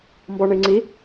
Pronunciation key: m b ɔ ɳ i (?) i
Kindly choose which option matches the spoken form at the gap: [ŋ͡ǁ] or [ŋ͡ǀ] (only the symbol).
ŋ͡ǀ